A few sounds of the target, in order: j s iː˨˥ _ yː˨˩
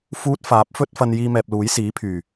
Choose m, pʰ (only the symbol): pʰ